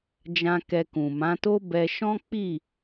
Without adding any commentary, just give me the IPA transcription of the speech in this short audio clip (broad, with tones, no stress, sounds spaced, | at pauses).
d͡ʒ ã˧ k ɛ˧ k ũ˨ m ã˨˦ t o˦ b ɛ˧ ʃ ɔ̃˦ k͡p i˦˨